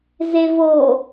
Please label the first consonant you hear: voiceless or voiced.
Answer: voiced